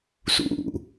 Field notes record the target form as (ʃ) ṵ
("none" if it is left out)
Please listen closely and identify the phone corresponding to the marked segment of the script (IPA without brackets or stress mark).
s